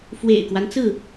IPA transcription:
f w ḛ˨˩ ɪ̯ k w a˦ n t͡s ɹ̩˥˨

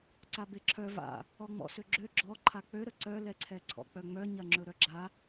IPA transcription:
ǀ a b e ǁʰ œ v a̰ | ɔ ŋ͡m ɔ̰ s ø ɡ͡ǁ ø ɡ͡ǁ ɔ ǃʰ a k͡p ø ɾ ə ǀ œ l ɛ ǀʰ ɛ ǀʰ ɔ̰ k͡p œ ŋ͡m œ ɲ ɐ ŋ͡ǁ ɵ ɾ œ ɡ͡ǁ a

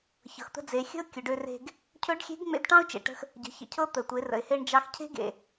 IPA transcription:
ç ɤ˩ x t̪ ə̤˧ d͡z e˩˧ xʲ ə̤˥ ʊ̯ kʲ ɵ˩˧ ɖ ø˧ r e̤˧ ɡ | cʰ ɵ˧˥ ɖ xʲ e̤˧˥ ɡ ŋ͡m ḛ˧ d ʈ ɑ̃˥ ʊ̯ t͡ʃ ḛ˩ ʈ ə̤˧ x | ɟ ə̤˩˧ ç ə̰˩ cʰ ɤ˧˥ t̪ ə˩ tʷ e˩˧ r ə̰˩ ɪ̯ h e˧ ɳ d͡ʒ ɑ˧ x cʰ e̤˥ ɡ ḛ˩

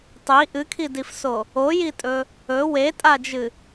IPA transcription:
tˤ i ʔ ɨ kʰ i d i f s o | o j i tʼ ɵ | ɵ w e tʼ a d͡ʒ ɨ

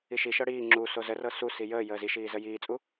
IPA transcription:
i ʃ i ʃ ɤ ɽ iː ŋ͡ǁ u s o z ə r ɤ s u s i j əː j əː z i ʃ iː z ə j iː t͡sʼ u

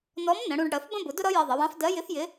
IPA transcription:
n ɔ˧˥ m n ə̃˩˧ ɽ ũ˧ ɖ ɽ ɜ˩˧ f b ə̃˥ b ʊ˩˧ d ʊ˥ ɾ ʌ˧˥ j ɜ˧ ðˤ ə˩˧ w ɑ̃˧˥ f d ɜ˧˥ j ɪ˧˥ f j ɪ˧˥

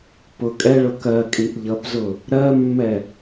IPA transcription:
p ʊ kʼ ɛ ɭ ʊ k ɜ kʼ i ʔ ʎ ʌ p z ʊ | ɾ ɜ mː ɛ

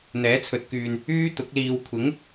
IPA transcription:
n̪ ɛː˨˥ t͡sʰ ɵ˨ t̚ k yː˨ n | yː˥ t̪ ʊ˨˥ k̚ l iː˨ w kʷʰ ɪ˨˥ ŋ

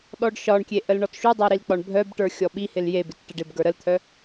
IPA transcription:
ɗ ɔ ɖ ʃ ɒ ɳ kʲ e ʔ ə l ɳ ɔ t ʃ u dˤ œ ɾ i l k͡p ɒ ɳ bʱ œ b ʈ ə˞ xʲ ɔ ɓ i h ɪ l j e b ɪ t ʈ ə ɖ ɪ b ɡ ə˞ ɾ ə l t̪ʰ œ

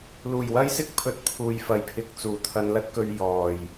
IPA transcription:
l uː˨˩ j w ɐ˥ j s ɪ˥ k̚ pʰ ɵ˨ t̚ pʰ uː˧ j f ɐ˨˧ j pʰ ɪ˧ k̚ t͡s uː˨˩ t̪ʰ ɐ˧ n l ɐ˥ t̚ k ɵ˧ ɥ j ɔː˨˩ j

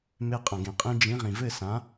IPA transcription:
m e˧ qʼ ɐ̃˩ ɡ ẽ˩ qʼ ĩ˧ d͡ʒ ĩ˩˥ ʁ ĩ˩ v ɘ˥˩ s ã˩˥

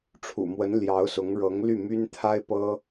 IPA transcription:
ʈ͡ʂʰ ṵ˨˩ m w ə˧˥ n l j ɑ˧˥ ʊ̯ s ʊ˧˥ ŋ ɻ ɤ˧˥ ŋ l y˥˩ m y˥ n t̪ʰ a˥ ɪ̯ p ɤ˥

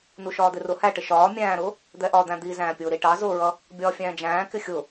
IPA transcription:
n u ʃ ɒː d̪ ɪ r ʊ h æ ʈ ɪ ʃ ɒː mʲ æ̃ː ɾ ʊː | d̪ ɛ ʔ ɒ d̪ æ̃ d̪ i z æ̃ː pʲ ʊː ɾ i ʈ ɑ z ʊː ɹ ʌ | bʲ ɒː fʲ æ̃ː d͡ʒ æ̃ː k ɪ xʲ ʊ

